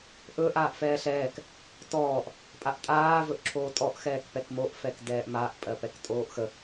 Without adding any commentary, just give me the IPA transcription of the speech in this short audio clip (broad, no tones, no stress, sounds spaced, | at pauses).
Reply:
ʔ ɵ ʔ aː ʔ f ɛː ɬ ɛː k | t ɔː ʔ | pʼ a ʔ tʼ aː v ɵ ʔ ǁʰ oː tʼ ɔ ʔ x ɛː k p ɛ k m o ʔ f ɛ k d ɛː ʔ m a ʔ pʼ ɜ p ɛ k tʼ oː ʔ x ə